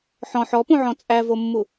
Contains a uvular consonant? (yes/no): no